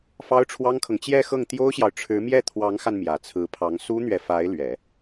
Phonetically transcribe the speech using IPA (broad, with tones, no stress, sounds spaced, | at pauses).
f ɑ˥ ʊ̯ ʈ͡ʂʰ w ɑ˥ ŋ kʰ ɤ˨ ŋ t͡ɕ j ɛ˥˧ x ɤ˥˩ ŋ t̪ j o˥ ʊ̯ ɕ j ɑ˨ ʊ̯ ʈ͡ʂʰ ɻ̩˧˥ m j ɛ˥˩ t̪ʰ w ɑ˧˥ ŋ x a˧ n m j ä˨˩ t͡sʰ ɹ̩˧˥ pʰ ɑ˧˥ ŋ s u˥ n̪ ɥ ɛ˨ f a˧˥ ɪ̯ l ɥ ɛ˨˩˦